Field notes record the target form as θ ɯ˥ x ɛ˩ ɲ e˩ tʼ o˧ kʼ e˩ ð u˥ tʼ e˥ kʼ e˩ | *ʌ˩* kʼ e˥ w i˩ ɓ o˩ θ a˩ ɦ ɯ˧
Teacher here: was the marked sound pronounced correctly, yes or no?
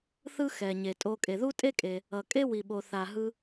yes